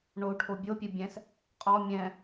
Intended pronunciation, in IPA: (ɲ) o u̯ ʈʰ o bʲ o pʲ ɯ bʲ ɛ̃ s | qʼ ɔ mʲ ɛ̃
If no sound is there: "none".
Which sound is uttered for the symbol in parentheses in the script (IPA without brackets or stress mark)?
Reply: ɳ